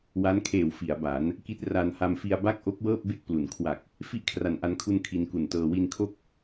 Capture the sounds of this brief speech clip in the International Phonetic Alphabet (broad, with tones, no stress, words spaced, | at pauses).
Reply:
wa˦˥nkʰeː˨˩w fi˩˦a̯ ba˩˦n | ki˦˥t̚ra˧nha˧mfi˧a̯ ba˥˩k̚ʔo˦˥k̚wɤː˥˩p̚ be˥˩k̚plu˩˦n kʰwa˨˩k̚ | fi˥˩ʔkʰra˨˩nʔa˧nkʰu˧n kʰi˧nku˨˩ntɤː˧ wi˧nkʰo˥˩k̚